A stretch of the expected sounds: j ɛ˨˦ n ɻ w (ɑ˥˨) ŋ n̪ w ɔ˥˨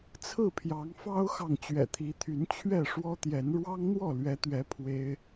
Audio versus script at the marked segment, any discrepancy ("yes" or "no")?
yes